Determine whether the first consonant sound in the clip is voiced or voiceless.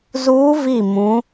voiced